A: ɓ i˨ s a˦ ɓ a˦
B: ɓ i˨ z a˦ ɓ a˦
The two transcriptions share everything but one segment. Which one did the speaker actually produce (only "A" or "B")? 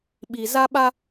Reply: B